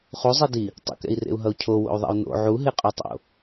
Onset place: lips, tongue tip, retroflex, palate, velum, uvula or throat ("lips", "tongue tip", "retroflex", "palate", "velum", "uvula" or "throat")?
uvula